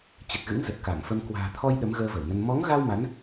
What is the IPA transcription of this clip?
t͡ɕ ə˨˩ t̚ ɣ ɨ̰˧˥ ŋ z ə˨˩ t̚ k a˧˩ ŋ f ə˧ m k w a̤ː˨˩ t̪ʰ ɔ˧ j ɗ ə˨˦ m ɣ əː˧ v ə˧˩ w n ə˧ n m ɔ˨˦ ŋ ɣ a˧ w m a˨˦ n

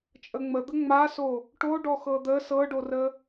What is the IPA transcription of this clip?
t͡ʃʼ ə ŋ͡m ə d̪ ə ŋ͡m a s o | ʈ o ɖ ɔ x ɤ d̪ ə s ɤ ɖ o r ə

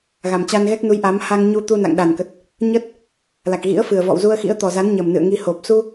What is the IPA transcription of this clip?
ɣ a˨˩ m t͡ɕ a˧ n ɣ ɛ˦˥ k̚ n u˨˦ j ʔ a˨˦ m h a˧ ŋ ɲ u˧ t̪ u˧ n a̰˧˨ ŋ ɗ a˨˩ n k ə˨˩ t̚ | ɲ ə˦˥ t̚ | l a˨˩ k̚ ɣ ḭ˧˥ ə̯ f ɨ˨˩ ə̯ v ɔ̰˧˨ w z u˧ ə̯ x ḭ˧˥ ə̯ t̪ ɔ˨˩ z a˨˦ n ɲ ə˨˩ m n ɨ̰˧˨ ə̯ ŋ i˧ h o˨˩ p̚ s u˧

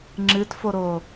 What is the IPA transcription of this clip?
ŋ͡ǁ ɨ t f o ɾ o

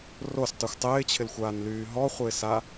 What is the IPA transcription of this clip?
r o s tˤ y xʷ tˤ ɪː t͡ɕʰ ɪ l xʷ aː n l yː ɦ ɔ χʷ ɪː s a

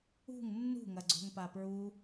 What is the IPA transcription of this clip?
ṳ ŋ nː ṳ ŋ ɐ ɡ͡ǀ o̤ ŋ p a p ɹ u

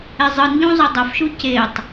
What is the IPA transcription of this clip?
e zˤ ɯ n ʎ ũ zˤ ʌ dˤ a f ʃ u c e tˤ

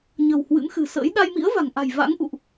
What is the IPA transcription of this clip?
ɲ ə̤˨˩ w h w ɨ̰˧˥ m x ɨ̤˨˩ s ə̰ː˧˥ j ɗ a˧ j m ḭ˧˥ ə̯ v a̤˨˩ ŋ ʔ a̤˨˩ j v a̰˧˥ ŋ ʔ ṵ˧˨ ʔ

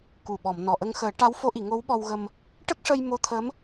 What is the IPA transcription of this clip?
k u˨˩ ɓ ɔ˨˩˨ m n ɔ˨˩ ʔ ə˧ ŋ x əː˨˩˦ ʈ a˧˥ w f o˧˥ ʔ i˨˩˨ ŋ o˧˥ w ɓ ɔ˧ w ɣ ə˧ m | ʈ ə˦˥ k̚ ʂ ə˧ j m o˧˥ t̪ʰ ə˧˥ m

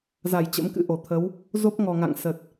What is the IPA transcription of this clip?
z a˧˩ j t͡ɕ ə̰˧˥ m k ɨ̰˧˥ ʔ o˧˩ t̪ʰ ə˨˦ w | z o˦˥ p̚ ŋ ɔ˨˩ ŋ a̰˧˨ ŋ s ə˨˩ t̚

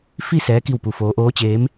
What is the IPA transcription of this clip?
f i˥˨ s ɛː˧˥ k i˥˨ w p u˧ f oː˧˥ ʔ oː˧˥ t͡ɕ eː˧˥ m

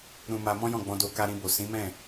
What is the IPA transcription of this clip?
ɾ ũ˧ m a˧ m ɔ̃˦ j ɔ̃˦˨ ɡ͡b ɔ̃˧ d o˧ k a˧ ɾ ĩ˧ b o˨ s ĩ˨˦ m ɛ̃˦˨

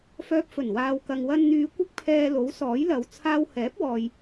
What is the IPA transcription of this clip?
f œː˧ p̚ f ɵ˨˩ n w aː˨ w k ɐ˨ ŋ w ɐ˧ n n̪ yː˨˧ kʷ ɪ˥ k̚ pʰ ɛː˧ l o˨˥ w s ɔː˨˥ j l ɐ˨˧ w t͡sʰ aː˧ w h ɛː˨˥ p̚ w ɔː˨ j

